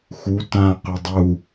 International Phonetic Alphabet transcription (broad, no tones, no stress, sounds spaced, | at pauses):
x u t ã q ʏ dˤ u